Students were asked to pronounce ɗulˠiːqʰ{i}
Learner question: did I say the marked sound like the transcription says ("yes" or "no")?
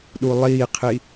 yes